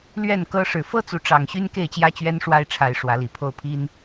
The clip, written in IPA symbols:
l ɥ ɛ˥˨ n k ɤ˦ ʂ ɻ̩˨˩ f ɤ˦ t͡s u˨˦ ʈ͡ʂ ɑ˨˩ ŋ ɕ y˦ n k e˥˨ ɪ̯ t͡ɕ j ä˦ t͡ɕ ɥ ɛ˦ n ʂ w a˦ ɪ̯ ʈ͡ʂʰ a˨˦ ɪ̯ ʂ w ä˨˦ l i˨˩ pʰ o˥˨ ʊ̯ pʰ i˦ n

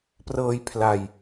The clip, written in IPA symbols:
p r ɤː˧ j pʰ l a˧ j

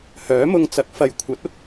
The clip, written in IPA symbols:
h œː˨˥ m ʊ˧ ŋ t͡s ɐ˨ k̚ f ɐ˨ j kʷʰ ɐ˨˥ t̚ ʊ˥ k̚

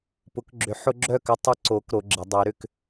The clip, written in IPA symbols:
p ʊ˨˦ k ɡ͡ǁ ʏ˨˦ ħ ʊ˦ ɡ͡ǁ œ˥˨ k ʏ˦ tˤ ɪ˦ ǀ o˨˦ k ɾ o˨˦ ɡ͡ǁ ɪ˨˦ dˤ y˨˦ ɾ ʏ˦ k

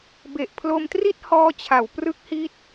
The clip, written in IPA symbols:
b e˨˩ ʔ pʰ l o˧ m t r i˥˩ t̚ h ɔː˦˥ t͡ɕʰ a˩˦ w p r ɯ˦˥ k̚ h i˦˥ t̚

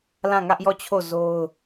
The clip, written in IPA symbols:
l ã˦˨ ŋ ä˦ ʔ j ɔ˦˨ t͡ɕʰ o˦˨ z o˦ ʊ̯

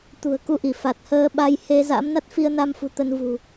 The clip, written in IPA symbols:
t̪ ṳ˨˩ ə̯ k u˧ ʔ i˧˩ f a˨˩ t̚ h əː˧ ɓ a˧ j h e˧ z a̰˧˥ m n a˦˥ t̚ f i˧ ə̯ n a˧ m f ṳ˨˩ t̪ ə˧ n v ṳ˨˩

